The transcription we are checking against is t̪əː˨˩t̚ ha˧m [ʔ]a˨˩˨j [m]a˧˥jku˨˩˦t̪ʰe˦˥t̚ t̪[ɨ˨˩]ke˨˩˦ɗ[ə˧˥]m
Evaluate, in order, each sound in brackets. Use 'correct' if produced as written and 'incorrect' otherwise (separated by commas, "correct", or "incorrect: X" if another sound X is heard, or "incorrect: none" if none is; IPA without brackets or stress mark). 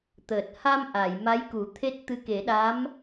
correct, correct, incorrect: ɨ˧˥, incorrect: a˧˥